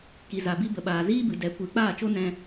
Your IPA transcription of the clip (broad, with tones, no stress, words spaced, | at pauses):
ki˨za˨bi˧bə˨ ɓaː˨ziː˦bɨ˨ dɛ˨˦kʷɨ˨˦ k͡paː˦˨t͡ʃo˦ nɛ̃˧